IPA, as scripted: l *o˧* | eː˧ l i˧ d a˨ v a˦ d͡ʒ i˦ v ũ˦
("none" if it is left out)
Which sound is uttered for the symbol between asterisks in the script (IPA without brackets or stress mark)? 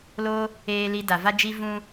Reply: o˧